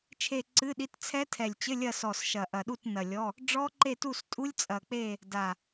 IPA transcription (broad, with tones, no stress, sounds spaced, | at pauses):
t͡ʃʰ e˦˨ ǀ ɨ˧˥˧ ɗ i˧˥˧ t t͡sʰ ɛ˦˥ tʰ ɛ˨˩ lʲ t͡ɕ ɘ˧˥˧ lʲ ɐ˦˨ s ɔ˨˩ s ʃ ɐ˨˩ ʔ ɐ˨˩ ɗ u˦˨ t n ɐ˨˩ lʲ ɔ˧˥˧ | ɖ͡ʐ ɔ˦˥ ǃ e˦˨ t u˦˨ s tʼ u˦˥ lʲ t͡sʼ ɐ˨˩ k͡p e˦˨ | d a˨˩